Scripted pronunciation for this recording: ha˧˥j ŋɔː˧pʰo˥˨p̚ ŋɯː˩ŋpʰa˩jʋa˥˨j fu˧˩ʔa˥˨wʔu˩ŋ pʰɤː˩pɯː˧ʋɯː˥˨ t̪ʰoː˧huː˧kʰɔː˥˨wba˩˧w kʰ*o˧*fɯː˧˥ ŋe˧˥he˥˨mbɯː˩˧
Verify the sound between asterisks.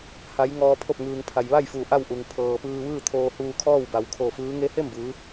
incorrect: o˧˩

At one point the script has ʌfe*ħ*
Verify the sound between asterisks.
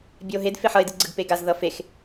incorrect: x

